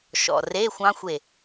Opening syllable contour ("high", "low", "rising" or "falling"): low